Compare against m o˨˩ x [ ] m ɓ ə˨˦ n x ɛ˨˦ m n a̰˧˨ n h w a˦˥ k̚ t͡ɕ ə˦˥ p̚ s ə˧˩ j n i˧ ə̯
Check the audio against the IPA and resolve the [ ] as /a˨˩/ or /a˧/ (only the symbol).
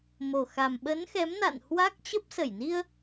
a˨˩